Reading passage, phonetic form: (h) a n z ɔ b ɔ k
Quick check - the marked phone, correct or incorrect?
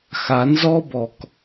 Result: incorrect